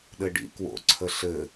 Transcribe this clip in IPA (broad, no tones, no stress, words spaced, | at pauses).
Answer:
ɗɘɖḭ kwo̰ ǀʰəɬɘ